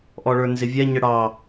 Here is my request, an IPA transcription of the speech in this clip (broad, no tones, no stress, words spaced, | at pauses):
ʔɔɭə˞nzɪvʲɛ ɲəɽɑ